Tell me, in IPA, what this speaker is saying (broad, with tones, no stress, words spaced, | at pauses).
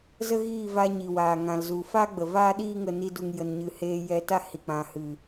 zə˦ɣiː˦˨vaː˧ ɲi˨waː˨ ŋã˨l zu˨fa˦ ɡ͡bə˨vaː˦ɗiː˦ŋə˧ ni˧du˨ŋjə˨nɲɨ˨ heː˧jɛ˧ta˦ hi˨k͡pã˨hɨ˨